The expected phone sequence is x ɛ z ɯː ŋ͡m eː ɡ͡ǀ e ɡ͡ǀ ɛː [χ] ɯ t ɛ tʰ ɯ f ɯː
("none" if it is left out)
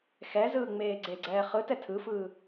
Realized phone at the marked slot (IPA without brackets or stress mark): χ